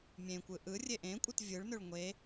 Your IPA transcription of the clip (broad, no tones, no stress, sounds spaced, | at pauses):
mʲ ẽ kʷ ɯ ʔ ɯ rʲ e ʔ ẽ kʷʼ ɯ t vʲ ɯ ɭ n ø ɭ ŋʷ e